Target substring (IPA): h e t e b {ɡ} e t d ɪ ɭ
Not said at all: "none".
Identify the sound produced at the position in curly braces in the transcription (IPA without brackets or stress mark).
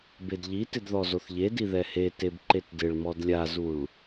ǃ